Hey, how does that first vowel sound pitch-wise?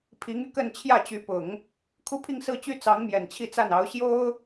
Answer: rising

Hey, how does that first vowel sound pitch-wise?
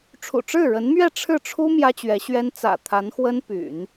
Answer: low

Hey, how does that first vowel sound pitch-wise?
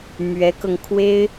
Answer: rising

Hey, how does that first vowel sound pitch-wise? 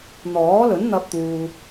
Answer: rising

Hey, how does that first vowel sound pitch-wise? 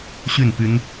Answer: falling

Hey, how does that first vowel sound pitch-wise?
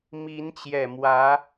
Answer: rising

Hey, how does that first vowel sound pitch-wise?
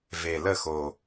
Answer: low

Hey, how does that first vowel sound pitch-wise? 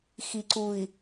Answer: low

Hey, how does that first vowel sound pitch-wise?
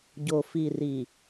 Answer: low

